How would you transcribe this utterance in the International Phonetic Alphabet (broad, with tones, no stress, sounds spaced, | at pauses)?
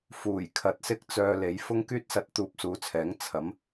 f uː˨˩ j kʰ ɐ˨ t̚ s ɪ˥ k̚ t͡s œː˧ l e˨˥ j f ʊ˥ ŋ k yː˥ t̚ s ɐ˧ t̚ t̪ uː˧ p̚ s uː˨˧ t͡sʰ ɛː˨˥ ŋ t͡sʰ ɐ˨˥ m